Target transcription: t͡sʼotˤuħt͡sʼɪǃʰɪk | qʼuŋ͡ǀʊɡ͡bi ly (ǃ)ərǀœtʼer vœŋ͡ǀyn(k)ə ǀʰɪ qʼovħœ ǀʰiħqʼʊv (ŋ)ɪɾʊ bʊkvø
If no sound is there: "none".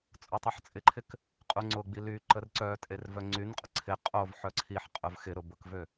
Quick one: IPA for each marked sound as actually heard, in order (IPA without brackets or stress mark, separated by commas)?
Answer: ǃ, qʼ, x